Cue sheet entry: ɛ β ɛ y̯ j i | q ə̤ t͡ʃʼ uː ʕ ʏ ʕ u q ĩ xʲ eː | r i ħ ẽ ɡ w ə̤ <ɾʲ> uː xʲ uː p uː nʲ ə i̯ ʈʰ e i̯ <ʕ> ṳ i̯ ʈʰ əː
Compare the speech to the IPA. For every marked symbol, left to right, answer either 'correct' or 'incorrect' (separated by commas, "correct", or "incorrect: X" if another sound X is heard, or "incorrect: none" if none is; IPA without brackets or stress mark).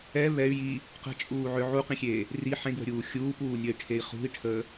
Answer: correct, incorrect: χ